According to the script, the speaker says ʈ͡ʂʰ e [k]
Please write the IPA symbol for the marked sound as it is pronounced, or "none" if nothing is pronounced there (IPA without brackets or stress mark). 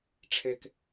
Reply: k